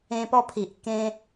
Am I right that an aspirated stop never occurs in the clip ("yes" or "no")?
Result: no